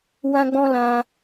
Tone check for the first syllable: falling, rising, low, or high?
high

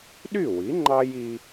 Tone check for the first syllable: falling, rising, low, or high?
falling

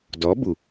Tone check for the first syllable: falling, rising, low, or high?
rising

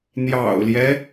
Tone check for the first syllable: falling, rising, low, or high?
low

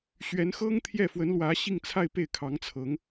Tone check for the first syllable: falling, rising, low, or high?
rising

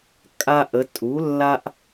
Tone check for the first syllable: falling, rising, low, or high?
high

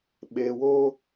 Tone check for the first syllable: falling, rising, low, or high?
low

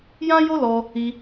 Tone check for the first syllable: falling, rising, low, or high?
high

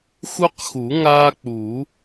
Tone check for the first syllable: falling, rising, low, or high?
high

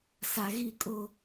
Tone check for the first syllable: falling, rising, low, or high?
low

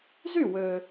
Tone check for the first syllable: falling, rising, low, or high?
falling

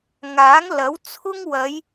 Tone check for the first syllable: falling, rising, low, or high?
rising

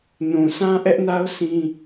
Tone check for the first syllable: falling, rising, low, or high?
low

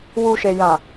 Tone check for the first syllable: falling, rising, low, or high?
low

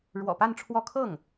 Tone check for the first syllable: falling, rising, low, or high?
low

